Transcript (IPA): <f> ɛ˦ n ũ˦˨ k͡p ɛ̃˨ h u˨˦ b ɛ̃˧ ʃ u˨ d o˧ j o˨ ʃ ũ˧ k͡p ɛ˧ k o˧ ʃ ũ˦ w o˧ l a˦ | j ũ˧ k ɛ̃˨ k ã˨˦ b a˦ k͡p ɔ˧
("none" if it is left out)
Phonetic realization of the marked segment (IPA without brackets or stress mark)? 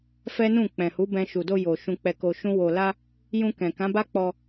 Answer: f